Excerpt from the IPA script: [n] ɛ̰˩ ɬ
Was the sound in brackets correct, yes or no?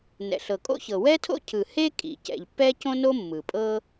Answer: yes